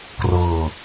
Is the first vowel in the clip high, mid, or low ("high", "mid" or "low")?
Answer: mid